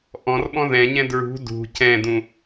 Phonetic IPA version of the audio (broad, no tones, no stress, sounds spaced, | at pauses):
ʔ ɔ̃ r ɓ ɔ̃ ð ɛ̃ ɲ ɛ̃ d ɹ ṳ d ṳ c ɛ̃ d ũ